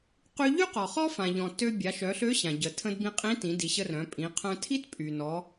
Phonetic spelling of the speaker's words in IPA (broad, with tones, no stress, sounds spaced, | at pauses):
q y˧ ʎ y˥ q ɔ˩ χ ɔ˥ f ã˩ ʎ ɔ̃˩ t ø˧ bʲ a˩˧ ʃ œ˩˧ ɬ ø˧˥ ɕ ã˩ ɟ ə˩ tʰ ə̃˧ d b ĩ˧ qʼ ĩ˧˥ t ĩ˩˧ d i˩˧ ɕ ə˧ r œ̃˩˧ pʼ ĩ˩˧ qʰ œ̃˧ tʰ i˥ t pʼ y˩ n ɔ˩˧